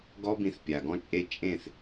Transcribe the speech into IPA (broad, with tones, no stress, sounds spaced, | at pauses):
ɡ ɔ˦ b ĩ˧ θ pʲ a˨ ɡ ɔ̃˦ t͡ʃʼ e˦ t͡ʃʼ ẽ˦˨ θ